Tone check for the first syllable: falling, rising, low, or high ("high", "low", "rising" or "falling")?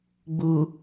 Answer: low